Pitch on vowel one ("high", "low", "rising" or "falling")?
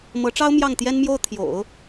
rising